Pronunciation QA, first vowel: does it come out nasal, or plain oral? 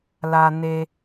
oral